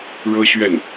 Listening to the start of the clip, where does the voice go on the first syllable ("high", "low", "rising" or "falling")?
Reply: high